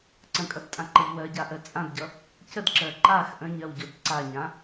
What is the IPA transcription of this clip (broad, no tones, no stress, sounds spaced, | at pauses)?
ǀ ə̃ kʼ ʌ d tʼ ã ǃ ʌ ʎ w ɜ ɟ a ʔ ɜ t͡sʼ ã d ɟ ʌ | c ə d ǁ ɜ ǃ a x ʔ ə̃ ɲ ɜ w ɟ o d ǀ a ɲ ã